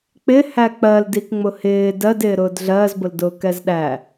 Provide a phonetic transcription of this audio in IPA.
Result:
k͡p ɪ h æ k͡p ɜ l d i k ŋ͡m ʊ h ɪː d ɜ d ɪː ɾ ʊː d ɮ ɜː z b ʊ l d ʊː k ɛ z ɗ æ

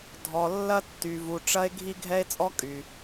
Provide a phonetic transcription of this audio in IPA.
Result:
dʱ ɔ˩ lː ɐ˥ tː y˩ v u˩ ʈ͡ʂ ɐ˥ e̯ ɡʱ i˥ ɡʱ ɛ˥ e̯ t͡sʼ ɔ˥ kʼ y˩

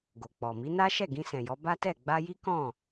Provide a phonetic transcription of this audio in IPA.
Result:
ɡ o˨ k͡p ɔ˨ m i˨˦ n a˦ ʃ ɛ˦˨ ɡ ĩ˧ s ɛ̃˨ j ɔ˨˦ b a˦ t ɛ˦˨ ɡ͡b a˧ j i˦ k ɔ̃˦˨

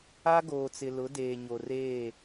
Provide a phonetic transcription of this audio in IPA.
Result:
a˦ ɡ oː˨ t͡s ɪ˨ l ʊ˨˦ d eː˨ ɲ o˨ r eː˦˨

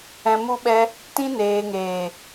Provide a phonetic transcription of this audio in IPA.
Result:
ɛ̃˨ m u˧ ɓ ɛ˧ | t ĩ˧ n eː˨ ŋ eː˨

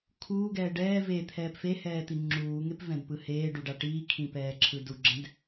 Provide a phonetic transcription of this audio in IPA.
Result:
kʰ uː ɡ ɛː ɖ ɛː v e t̪ʰ ɛː p f e h ɛː t̪ i ŋ͡ǁ uː ŋ e p v ɛ̃ d p ɯ h eː ɖ u ɖ a ʈ iː kʰ ĩ p ɛː ǁʰ ɯ d u ɡ͡ǁ ɛ̃ d

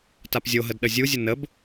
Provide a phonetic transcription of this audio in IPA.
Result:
t a p zʲ o ɦ ə d ɗ ə zʲ u zʲ ə n ə b

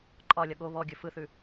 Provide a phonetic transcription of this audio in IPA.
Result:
ǃʼ ɒ lʲ ɒ ɠ o β ɔ ɡʲ ɵ f ɯ θ ʉ

